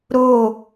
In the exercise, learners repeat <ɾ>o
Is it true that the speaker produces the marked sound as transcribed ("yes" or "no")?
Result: yes